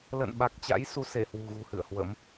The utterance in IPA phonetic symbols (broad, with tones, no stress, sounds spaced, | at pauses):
l ə̰˧˨ n ɓ a˨˩ k̚ t͡ɕ a̰˧˥ j s u˨˦ s e˧˩ h w ṳ˨˩ ɣ ṳ˨˩ h ɨ̰˧˨ ə̯ h w ə̰˧˥ m